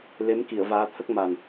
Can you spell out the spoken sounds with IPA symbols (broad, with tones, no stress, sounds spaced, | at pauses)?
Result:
l e˧˥ m k i˨˩˨ ə̯ v aː˧˥ t̪ʰ ə˦˥ k̚ m a˨˩ n